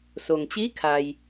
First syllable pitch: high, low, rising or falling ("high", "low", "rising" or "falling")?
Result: low